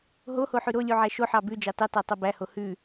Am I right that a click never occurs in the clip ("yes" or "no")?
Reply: yes